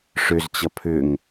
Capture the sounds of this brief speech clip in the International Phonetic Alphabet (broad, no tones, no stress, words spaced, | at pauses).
ʂʏzt͡ɕʌ pʰʏŋ